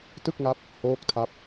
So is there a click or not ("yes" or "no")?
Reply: no